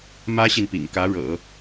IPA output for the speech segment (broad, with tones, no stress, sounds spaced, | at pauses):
m ä˥ ɕ i˨ n p ḭ˨˩ ŋ k ä˧˥ ɻ ɤ̰˨˩˦